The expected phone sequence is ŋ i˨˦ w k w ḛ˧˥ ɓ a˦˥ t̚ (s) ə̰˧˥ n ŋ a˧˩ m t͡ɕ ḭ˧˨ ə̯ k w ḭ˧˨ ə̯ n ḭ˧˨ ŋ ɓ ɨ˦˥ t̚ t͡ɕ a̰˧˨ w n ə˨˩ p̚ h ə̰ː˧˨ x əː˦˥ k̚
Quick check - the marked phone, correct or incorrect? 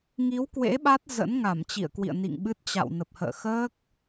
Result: incorrect